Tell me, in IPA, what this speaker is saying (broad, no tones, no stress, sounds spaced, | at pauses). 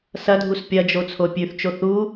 s ɐ dʱ u s pʲ ɐ d͡ʒ o t͡sʰ o pʲ ʉ θ t͡ʃ o θ u